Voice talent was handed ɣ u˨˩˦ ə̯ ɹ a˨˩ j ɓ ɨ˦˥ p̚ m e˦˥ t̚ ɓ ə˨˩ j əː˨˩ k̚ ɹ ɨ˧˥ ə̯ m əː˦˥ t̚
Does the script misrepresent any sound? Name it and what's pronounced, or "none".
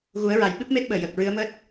ə˨˩ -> əː˨˩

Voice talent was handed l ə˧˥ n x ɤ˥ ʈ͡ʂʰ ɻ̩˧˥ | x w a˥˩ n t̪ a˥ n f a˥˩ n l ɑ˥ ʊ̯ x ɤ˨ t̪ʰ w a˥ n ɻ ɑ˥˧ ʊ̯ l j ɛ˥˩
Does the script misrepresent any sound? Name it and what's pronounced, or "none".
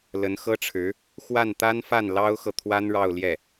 none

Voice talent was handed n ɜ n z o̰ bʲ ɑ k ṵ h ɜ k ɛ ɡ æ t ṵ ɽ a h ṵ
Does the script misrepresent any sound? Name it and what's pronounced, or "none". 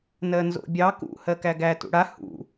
ɛ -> æ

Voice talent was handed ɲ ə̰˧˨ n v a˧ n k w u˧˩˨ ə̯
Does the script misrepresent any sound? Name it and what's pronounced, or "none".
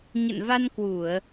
none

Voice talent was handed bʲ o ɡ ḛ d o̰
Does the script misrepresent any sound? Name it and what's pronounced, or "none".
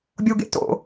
d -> t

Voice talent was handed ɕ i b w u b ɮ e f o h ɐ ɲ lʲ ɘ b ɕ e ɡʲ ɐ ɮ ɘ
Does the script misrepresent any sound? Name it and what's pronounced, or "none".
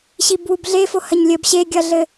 none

